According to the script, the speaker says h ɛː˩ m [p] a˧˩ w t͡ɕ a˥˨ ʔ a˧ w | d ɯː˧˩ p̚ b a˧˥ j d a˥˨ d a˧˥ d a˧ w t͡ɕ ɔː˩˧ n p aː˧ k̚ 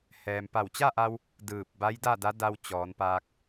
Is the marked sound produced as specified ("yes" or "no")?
yes